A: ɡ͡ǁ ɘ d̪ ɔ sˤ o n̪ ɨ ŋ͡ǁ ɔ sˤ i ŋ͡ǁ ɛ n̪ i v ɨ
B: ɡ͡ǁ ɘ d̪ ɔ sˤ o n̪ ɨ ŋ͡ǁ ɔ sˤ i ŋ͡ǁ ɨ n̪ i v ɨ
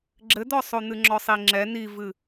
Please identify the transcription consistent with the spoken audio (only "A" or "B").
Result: A